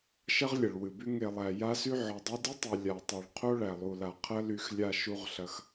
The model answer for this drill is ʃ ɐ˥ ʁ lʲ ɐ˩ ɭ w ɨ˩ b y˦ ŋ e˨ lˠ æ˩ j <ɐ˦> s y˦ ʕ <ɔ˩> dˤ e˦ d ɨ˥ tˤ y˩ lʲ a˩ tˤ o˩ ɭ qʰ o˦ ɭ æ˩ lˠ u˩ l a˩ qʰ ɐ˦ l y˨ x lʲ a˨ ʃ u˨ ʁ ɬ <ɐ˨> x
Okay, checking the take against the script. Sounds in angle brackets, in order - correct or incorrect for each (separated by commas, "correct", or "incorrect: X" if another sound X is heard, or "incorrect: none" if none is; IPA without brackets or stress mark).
incorrect: a˦, correct, incorrect: ɐ˩